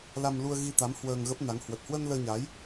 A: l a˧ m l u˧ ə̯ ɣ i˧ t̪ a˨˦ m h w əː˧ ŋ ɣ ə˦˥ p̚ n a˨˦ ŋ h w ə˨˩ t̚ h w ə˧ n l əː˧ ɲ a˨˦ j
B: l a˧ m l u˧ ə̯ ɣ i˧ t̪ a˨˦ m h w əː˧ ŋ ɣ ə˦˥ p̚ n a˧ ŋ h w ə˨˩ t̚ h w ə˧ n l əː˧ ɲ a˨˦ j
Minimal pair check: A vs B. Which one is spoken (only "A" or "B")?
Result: A